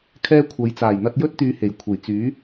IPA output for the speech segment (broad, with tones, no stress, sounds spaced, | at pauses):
kʰ ɛː˥ kʷʰ ɐ˨˧ j t͡s aː˨˩ j n̪ ɐ˧ t̚ j ɵ˥ t̚ t̪ yː˨˧ h e˨˩ j kʷʰ e˨˩ j t͡s yː˨˥